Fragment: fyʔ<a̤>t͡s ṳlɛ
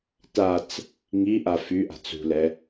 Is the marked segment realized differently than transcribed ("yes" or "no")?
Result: no